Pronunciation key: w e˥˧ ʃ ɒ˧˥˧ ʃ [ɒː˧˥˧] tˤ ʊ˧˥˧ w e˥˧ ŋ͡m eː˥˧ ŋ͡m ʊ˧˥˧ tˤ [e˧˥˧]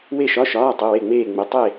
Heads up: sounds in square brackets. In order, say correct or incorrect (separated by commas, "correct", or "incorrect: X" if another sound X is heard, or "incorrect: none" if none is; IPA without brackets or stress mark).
correct, incorrect: e˥˧